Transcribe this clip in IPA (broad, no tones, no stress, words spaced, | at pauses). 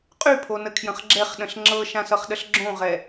qʼypʰonəkʰjə̃χ ɡ͡ǁɛχɗə̃ɬ ŋ͡ǁɤʃãsʌχɗəɬ ɡ͡ǁõʁɛ